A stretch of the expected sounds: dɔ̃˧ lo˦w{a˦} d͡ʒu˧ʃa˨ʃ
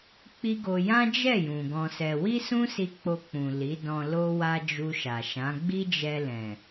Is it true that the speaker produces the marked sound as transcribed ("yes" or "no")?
yes